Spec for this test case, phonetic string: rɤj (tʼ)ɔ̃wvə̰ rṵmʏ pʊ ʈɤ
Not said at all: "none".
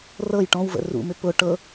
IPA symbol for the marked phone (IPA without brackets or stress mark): ʈ